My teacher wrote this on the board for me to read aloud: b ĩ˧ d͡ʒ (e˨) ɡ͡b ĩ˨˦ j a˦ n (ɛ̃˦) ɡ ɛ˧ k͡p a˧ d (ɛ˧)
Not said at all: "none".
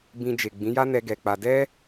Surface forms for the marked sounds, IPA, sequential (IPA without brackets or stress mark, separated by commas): e˨, ɛ˦, ɛ˦